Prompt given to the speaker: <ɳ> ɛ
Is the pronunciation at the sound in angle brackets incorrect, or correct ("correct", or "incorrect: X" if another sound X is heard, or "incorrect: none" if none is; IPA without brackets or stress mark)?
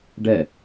incorrect: ɖ